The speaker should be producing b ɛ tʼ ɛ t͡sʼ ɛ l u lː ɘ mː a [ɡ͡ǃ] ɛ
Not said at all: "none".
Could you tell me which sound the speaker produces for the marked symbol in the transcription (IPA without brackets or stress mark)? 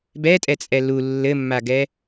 ɡ